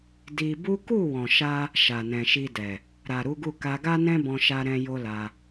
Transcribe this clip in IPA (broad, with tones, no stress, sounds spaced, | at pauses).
d i˧ b u˦ k u˦˨ w ɔ̃˨ ʃ a˧ | ʃ a˨ n ɛ̃˨ ʃ i˧ d ɛ˨ | ɾ a˨ ɾ u˨˦ ɡ u˦˨ k a˧ ɡ a˦ n ɛ̃˦ b ɔ̃˧ ʃ a˦ ɾ ɛ̃˦ j o˦ l a˧